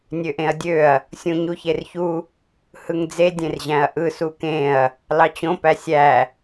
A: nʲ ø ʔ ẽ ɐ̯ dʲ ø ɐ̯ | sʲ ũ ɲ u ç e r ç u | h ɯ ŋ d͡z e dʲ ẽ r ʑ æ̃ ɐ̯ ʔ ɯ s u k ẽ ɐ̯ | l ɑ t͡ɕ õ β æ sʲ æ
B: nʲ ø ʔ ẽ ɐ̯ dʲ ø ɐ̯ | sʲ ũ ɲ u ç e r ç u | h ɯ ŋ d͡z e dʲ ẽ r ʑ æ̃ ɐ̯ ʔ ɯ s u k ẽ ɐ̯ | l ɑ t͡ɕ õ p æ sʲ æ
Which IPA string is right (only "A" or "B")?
B